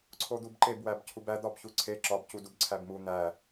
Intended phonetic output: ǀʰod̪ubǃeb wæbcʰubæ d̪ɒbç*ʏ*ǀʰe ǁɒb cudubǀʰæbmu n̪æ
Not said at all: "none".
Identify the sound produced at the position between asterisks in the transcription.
u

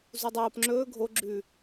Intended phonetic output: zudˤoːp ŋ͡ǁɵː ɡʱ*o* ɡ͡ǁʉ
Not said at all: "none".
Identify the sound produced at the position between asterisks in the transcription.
o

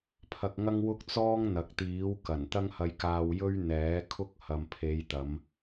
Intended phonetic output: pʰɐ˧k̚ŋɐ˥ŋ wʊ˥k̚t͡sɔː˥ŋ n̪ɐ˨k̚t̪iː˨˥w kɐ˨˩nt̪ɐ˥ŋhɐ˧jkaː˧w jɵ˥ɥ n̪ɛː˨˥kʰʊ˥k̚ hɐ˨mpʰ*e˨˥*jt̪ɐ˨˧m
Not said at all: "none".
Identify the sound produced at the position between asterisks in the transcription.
e˨˧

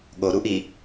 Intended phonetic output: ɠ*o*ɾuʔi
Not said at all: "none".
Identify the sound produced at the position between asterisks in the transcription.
o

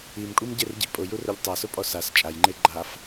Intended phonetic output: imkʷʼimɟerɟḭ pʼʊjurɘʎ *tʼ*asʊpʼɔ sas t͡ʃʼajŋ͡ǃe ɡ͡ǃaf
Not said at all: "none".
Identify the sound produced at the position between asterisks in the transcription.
tˤ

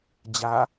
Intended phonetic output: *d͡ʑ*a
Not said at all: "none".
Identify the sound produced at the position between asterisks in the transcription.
d͡ʑ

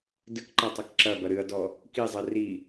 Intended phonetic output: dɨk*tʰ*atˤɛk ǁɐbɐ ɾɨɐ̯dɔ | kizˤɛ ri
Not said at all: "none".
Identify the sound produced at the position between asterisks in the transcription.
ǃ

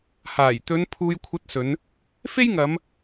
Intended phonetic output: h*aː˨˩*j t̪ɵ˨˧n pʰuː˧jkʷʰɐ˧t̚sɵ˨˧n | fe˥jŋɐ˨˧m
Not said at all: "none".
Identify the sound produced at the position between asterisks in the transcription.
aː˨˩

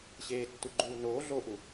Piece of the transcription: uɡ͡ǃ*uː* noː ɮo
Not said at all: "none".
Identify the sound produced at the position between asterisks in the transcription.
uː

